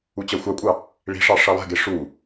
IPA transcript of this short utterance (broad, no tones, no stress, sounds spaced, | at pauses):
u t͡ɕ ʌ xʷ ɑ kʷʼ ɑ | ɭ i̤ ʂ ɑ ʂ ʌ lˠ ɛ̤ ɡ e ʂ u